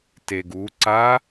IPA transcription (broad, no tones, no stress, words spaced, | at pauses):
teɡuǀa